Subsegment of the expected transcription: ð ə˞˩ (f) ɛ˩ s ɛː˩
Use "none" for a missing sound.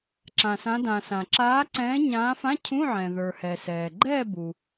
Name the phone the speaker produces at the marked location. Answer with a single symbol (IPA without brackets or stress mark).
h